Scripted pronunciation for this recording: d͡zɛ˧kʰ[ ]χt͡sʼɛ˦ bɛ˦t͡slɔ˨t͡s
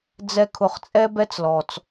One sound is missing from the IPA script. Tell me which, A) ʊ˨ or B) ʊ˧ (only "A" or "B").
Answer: A